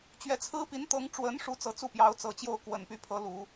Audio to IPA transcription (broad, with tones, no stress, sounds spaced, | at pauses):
t͡ɕ ɥ ɛ˧˥ t͡sʰ ɹ̩˥ p i˧˥ n t̪ ɤ˧˥ ŋ ʈ͡ʂ w ə˧˥ n ʂ u˧˥ t͡s ɤ˧˥ t͡s u˥˩ p j ɑ˧˥ ʊ̯ t͡s ɤ˨˩ t͡ɕ j o˥˩ ʊ̯ k w ə˨˩ n p y˧˥ pʰ ɤ˧˥ l u˨˩˦